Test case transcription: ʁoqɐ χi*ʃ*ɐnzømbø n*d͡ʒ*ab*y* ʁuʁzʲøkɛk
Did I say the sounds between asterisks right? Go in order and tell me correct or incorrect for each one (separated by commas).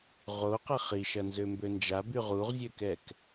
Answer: correct, correct, correct